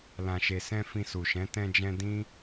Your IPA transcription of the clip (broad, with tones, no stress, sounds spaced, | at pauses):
l ã˨ ʃ e˨ s ɛ̃˧ f ĩ˧ s u˨ ʃ ɛ̃˨˦ t ɛ̃˧ d͡ʒ ɛ̃˧ d ĩ˦